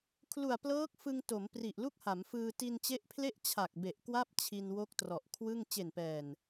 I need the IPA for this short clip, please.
kʰlu˨˩a̯plɤː˦˥k̚fɯ˧ŋ to˩˦m pri˨˩ʔlu˥˩k̚ha˩˦mfɯː˧ ti˧nt͡ɕe˦˥ʔpʰle˥˩ʔ t͡ɕʰa˨˩k̚be˨˩ʔkwa˥˩p̚ t͡ɕʰi˧nwo˦˥k̚trɔ˨˩ʔ kʰwɯ˥˩ŋ t͡ɕe˨˩npɛː˨˩n

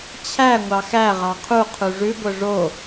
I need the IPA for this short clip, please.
t͡ɕʰæ ŋʷɑxæ ʁɑqʰu qʰuʐʉ ɡʷœʐo

